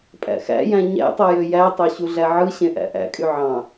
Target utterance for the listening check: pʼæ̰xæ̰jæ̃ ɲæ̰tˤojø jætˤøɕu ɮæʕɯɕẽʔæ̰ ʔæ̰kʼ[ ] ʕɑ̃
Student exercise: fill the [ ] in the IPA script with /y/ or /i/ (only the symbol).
y